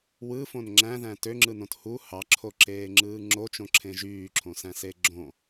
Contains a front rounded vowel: yes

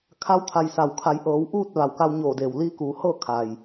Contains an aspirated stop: yes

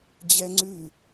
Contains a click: yes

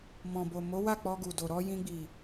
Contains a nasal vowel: yes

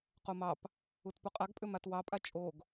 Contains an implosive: no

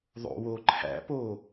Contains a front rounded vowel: no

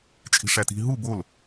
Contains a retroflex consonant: yes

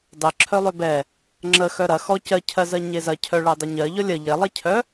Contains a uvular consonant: no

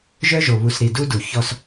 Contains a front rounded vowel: yes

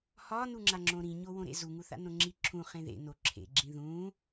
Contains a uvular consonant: yes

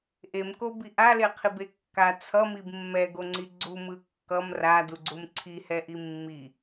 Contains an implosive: no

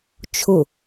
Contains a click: no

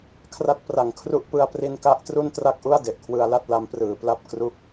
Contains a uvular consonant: no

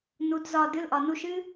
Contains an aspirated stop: no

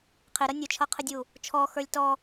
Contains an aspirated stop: yes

